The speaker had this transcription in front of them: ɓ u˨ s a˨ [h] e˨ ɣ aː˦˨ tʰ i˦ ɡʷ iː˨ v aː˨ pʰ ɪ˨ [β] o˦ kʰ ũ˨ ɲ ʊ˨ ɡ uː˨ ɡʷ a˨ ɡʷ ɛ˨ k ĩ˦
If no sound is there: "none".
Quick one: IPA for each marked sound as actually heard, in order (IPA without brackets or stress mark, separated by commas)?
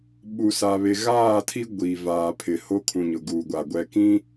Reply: β, h